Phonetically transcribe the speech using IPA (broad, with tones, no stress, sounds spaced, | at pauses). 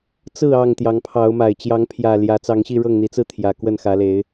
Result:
t͡s ɹ̩˥˨ ɑ˥˨ ŋ t̪ j ɑ˨˦ ŋ pʰ ɑ˨˦ ʊ̯ m a˨˩ ɪ̯ t͡ɕ j ɑ˨˦ ŋ pʰ j ä˨˩ l j ä˨˦ t͡s ɑ˨˦ ŋ ɕ i˥˨ ɻ ɤ˥˨ ŋ n̪ i˨˦ t͡s ɹ̩˥˨ t̪ʰ j ä˨˩ k w ə˥˨ n x ä˨˦ l e˨˦ ɪ̯